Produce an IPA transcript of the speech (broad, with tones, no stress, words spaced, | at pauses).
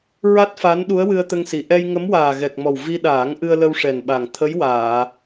ɹa˦˥t̚fa˧˥n ɗu˧˥ə̯wɨ˧ə̯t̪ə˧ŋsi˨˩˨ ʔɛ˧j ŋə˧˥mwaː˨˩ɣɛ˨˩k̚mɔ˨˩w vi˧ɗaː˨˩˦ŋ ʔɨ˧ə̯lə˧wʂɛ˨˩nɓa˨˩ŋ t̪ʰə˧˥j waː˨˩˨